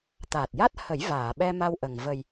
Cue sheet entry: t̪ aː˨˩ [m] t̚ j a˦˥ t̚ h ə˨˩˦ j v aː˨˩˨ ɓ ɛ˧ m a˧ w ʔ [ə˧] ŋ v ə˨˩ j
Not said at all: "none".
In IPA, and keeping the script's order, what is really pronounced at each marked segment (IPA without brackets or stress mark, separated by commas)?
none, ə˨˩